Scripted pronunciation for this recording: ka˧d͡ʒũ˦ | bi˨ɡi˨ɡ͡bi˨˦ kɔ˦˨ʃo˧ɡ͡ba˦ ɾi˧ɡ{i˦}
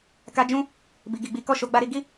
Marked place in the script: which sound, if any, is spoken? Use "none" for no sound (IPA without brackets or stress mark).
i˦